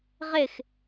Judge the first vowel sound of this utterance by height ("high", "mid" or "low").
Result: high